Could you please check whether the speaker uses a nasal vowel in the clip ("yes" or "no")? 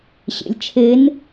no